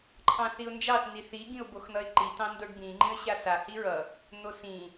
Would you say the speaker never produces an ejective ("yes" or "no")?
yes